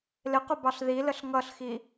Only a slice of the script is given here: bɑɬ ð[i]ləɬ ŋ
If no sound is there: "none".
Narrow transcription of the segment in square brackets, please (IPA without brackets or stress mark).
i